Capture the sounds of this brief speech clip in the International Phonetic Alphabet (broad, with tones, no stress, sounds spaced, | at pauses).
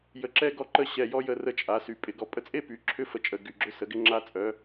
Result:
j ə˧ ǁ ɛ˥ ɡ ɔ˥ ǃ ə˥ ɕ ɛ˧ j ɔ˥ j ə˧ r ə˧˥ t͡ʃʼ a˩˧ s y˩ pʼ ɪ˩˧ ɡ ɔ˩ pʼ ə˧ t͡sʼ e˥ p y˩˧ ǁʰ ʏ˧˥ f ə˩˧ t͡ʃʼ ə˩ ɡ y˩ ɡ͡ǁ ʏ˧˥ s ə˩˧ ɡ ɪ˧ ŋ͡ǁ a˧ t͡sʼ œ˩˧